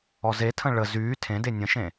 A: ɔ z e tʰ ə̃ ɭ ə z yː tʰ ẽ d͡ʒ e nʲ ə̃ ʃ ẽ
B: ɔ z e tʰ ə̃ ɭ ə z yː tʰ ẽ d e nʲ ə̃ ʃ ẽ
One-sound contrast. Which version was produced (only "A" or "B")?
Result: B